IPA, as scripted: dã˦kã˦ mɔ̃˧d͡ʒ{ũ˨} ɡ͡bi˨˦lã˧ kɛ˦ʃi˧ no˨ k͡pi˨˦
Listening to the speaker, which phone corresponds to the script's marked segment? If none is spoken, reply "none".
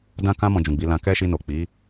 ũ˨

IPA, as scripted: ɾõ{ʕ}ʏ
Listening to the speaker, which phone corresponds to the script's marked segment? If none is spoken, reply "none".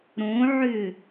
ʕ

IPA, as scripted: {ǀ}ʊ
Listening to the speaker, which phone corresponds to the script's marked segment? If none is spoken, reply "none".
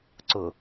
ǀ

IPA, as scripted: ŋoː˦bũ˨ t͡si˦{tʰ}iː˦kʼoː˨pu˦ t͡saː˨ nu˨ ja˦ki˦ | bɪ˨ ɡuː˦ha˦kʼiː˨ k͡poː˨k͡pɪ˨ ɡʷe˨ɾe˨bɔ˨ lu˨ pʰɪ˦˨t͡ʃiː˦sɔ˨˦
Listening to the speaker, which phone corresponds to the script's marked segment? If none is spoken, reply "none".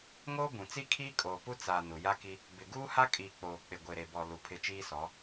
kʰ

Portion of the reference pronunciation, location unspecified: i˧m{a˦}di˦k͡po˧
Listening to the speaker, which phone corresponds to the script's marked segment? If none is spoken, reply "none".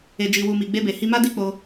a˦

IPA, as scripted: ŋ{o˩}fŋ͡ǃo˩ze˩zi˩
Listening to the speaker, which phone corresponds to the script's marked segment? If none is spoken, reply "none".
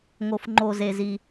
o˩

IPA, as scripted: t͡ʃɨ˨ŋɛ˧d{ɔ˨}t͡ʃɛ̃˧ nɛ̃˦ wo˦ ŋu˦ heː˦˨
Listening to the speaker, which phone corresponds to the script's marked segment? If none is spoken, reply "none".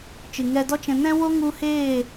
ɔ˦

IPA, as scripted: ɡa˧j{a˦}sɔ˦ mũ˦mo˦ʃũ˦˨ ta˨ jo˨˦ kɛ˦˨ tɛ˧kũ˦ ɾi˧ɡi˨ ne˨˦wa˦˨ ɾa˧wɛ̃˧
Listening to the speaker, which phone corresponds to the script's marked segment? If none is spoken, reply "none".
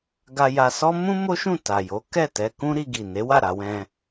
a˧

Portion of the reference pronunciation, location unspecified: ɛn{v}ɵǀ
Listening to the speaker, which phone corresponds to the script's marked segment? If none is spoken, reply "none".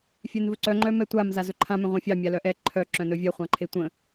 v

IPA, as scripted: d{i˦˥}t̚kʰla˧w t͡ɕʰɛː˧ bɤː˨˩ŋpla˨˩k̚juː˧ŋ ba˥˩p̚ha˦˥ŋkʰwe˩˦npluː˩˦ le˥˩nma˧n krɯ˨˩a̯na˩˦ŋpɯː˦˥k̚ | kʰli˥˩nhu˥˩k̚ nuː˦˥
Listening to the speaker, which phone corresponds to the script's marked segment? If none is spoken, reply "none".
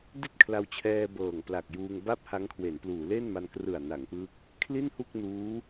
i˥˩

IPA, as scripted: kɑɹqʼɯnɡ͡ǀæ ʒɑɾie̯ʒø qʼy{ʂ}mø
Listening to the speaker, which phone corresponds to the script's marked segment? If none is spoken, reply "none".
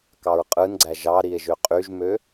ʒ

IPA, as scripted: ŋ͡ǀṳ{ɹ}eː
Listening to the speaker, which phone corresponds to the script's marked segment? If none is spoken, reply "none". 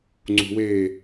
w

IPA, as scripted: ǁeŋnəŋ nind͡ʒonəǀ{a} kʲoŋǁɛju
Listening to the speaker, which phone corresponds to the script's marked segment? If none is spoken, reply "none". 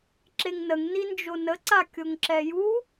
a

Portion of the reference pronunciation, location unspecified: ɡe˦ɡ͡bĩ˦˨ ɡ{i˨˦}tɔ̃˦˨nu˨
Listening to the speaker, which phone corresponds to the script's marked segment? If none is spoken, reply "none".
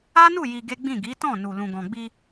i˨˦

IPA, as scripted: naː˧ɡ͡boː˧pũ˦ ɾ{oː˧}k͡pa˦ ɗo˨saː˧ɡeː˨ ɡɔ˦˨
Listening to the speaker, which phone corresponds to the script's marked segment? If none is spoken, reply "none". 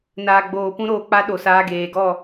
oː˧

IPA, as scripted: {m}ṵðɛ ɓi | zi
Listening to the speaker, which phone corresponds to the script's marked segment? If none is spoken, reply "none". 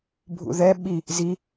bʱ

